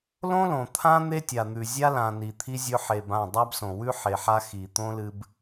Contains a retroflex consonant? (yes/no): no